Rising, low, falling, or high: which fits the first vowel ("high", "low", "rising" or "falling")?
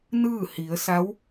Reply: falling